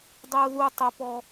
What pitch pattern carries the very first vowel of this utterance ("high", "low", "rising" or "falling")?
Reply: high